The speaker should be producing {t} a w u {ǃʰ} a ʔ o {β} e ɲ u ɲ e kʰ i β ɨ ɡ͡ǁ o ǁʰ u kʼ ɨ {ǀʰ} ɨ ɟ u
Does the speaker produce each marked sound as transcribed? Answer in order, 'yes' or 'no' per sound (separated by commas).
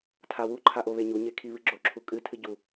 no, yes, yes, no